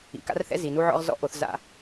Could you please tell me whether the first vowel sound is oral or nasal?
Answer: oral